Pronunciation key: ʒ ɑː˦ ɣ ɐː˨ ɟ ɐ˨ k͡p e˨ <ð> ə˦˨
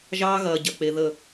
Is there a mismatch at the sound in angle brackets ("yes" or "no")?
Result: no